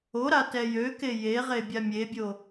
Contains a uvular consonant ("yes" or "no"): yes